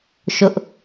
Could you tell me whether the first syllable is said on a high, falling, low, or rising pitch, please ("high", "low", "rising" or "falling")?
high